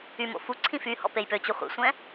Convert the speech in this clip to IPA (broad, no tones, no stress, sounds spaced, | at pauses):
y m o̰ f u ǀʰ ĩ f y h ɔ̰ p e j p ø t͡ɕ u χʷ ḛ sʷ ɛ̃